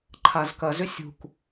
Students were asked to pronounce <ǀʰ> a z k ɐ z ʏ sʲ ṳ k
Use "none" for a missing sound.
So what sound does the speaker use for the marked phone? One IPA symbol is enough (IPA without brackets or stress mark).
ǃʰ